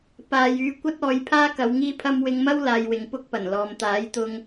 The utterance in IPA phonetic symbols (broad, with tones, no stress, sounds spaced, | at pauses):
p aː˨ j yː˨˧ kʷ ɐ˥ t̚ ɔː˨˧ j pʰ aː˥ k ɐ˨˧ w ŋ iː˥ pʰ ɐ˥ m w ɪ˧ ŋ m ɐ˥ w l aː˧ j w ɪ˨˧ ŋ p ʊ˥ k̚ p ɐ˨˩ n l ɔː˨ m t̪ aː˨˥ j t̪ ʊ˧ ŋ